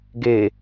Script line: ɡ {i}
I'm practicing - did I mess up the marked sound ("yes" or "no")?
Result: yes